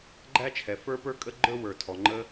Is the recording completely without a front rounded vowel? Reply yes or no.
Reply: yes